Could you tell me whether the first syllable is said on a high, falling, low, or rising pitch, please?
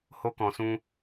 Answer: high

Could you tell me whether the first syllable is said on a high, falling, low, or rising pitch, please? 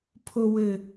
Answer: low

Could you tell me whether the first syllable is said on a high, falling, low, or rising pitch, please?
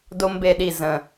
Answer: high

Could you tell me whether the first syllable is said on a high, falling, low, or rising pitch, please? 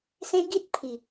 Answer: high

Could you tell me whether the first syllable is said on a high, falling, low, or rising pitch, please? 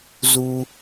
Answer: high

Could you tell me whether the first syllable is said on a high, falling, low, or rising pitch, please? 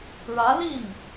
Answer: rising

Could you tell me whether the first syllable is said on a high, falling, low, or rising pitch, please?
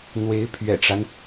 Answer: rising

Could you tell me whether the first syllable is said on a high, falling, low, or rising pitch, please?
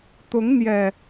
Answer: rising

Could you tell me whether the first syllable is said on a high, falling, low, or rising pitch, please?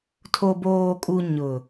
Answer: low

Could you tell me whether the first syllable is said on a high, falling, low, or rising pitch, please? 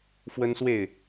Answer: high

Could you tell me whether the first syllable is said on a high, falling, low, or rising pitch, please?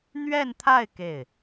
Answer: falling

